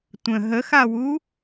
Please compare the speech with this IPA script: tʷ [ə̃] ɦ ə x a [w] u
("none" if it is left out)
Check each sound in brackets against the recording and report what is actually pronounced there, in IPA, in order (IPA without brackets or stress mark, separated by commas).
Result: ə̃, w